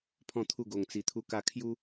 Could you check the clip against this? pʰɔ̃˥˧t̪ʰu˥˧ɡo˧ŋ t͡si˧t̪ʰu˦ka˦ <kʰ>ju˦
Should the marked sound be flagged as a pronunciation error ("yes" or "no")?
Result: no